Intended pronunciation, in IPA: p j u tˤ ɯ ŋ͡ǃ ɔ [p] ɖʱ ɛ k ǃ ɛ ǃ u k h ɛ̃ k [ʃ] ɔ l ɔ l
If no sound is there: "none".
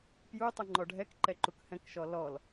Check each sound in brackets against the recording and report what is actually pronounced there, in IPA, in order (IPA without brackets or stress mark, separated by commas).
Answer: none, ʃ